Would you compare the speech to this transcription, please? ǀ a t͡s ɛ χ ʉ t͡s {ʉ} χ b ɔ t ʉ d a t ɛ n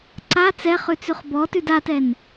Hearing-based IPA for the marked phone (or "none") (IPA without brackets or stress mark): ʉ